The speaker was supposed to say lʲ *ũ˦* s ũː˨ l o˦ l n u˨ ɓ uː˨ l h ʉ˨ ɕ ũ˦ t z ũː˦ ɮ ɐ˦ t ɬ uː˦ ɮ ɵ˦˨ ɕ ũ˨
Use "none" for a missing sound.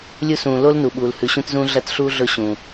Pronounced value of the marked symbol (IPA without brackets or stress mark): u˦